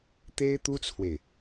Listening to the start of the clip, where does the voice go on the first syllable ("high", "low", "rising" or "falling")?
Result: high